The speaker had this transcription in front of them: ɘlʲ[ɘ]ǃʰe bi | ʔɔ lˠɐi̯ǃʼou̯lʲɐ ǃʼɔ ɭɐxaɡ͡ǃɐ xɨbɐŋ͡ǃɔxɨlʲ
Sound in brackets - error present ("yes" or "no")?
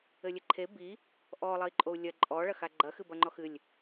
no